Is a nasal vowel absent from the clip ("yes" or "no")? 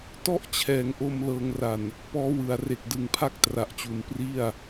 yes